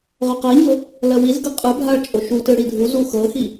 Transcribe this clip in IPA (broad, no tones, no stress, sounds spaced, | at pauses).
ʁ ø q ɜ ɲ ɤ | l ɜ w i z ɡ ɯ qʼ ɯ bʱ a ɭ t͡ʃʼ o ʃ u t ɯ ɽ i dʱ u z u x ɤ x i